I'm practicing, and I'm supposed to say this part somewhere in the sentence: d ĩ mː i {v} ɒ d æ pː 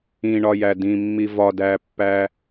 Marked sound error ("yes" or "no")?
no